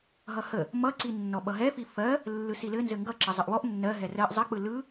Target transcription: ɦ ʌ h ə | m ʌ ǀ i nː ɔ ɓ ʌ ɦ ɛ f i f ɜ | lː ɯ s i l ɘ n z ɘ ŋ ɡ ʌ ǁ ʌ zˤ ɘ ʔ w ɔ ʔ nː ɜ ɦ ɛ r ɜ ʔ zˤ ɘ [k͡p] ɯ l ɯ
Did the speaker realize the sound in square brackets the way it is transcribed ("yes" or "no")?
yes